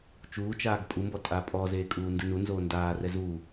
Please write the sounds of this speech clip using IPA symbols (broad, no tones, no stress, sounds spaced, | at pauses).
t͡ʃ uː t͡ʃ aː ɡ pʼ u m b ɔ tʼ aː pʼ ɔ z eː kʼ uː n d ɯ n u n z oː n d aː r ɛ z uː